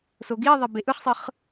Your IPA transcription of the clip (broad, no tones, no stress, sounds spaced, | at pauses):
s o ɡ i ðˤ ɛ b e ʔ ɯ χ sˤ ɯ χ